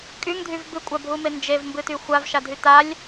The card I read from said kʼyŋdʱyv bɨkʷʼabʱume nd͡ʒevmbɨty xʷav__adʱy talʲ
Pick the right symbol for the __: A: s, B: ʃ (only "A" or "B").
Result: B